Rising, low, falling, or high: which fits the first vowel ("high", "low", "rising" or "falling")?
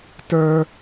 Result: high